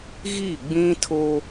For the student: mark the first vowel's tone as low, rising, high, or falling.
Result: falling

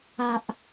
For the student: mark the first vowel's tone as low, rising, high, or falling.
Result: low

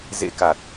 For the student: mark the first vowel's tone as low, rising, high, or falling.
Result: rising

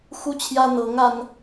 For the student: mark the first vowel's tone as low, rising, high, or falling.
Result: high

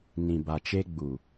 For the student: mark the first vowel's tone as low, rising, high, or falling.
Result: low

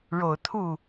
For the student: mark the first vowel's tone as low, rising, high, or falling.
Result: low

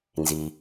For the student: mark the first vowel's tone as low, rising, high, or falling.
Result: low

